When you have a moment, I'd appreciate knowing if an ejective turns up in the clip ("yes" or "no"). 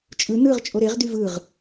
yes